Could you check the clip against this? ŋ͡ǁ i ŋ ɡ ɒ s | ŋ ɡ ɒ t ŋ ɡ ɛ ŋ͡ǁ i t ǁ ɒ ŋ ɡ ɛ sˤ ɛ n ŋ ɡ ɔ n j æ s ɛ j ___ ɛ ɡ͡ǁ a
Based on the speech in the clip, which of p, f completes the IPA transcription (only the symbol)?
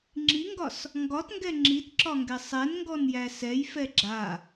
f